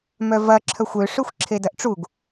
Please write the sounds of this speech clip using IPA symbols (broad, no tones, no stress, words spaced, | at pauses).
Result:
mœvɐ ǁʰœxʷø ʂøxʷǁʰedɐʔʈ͡ʂuɡ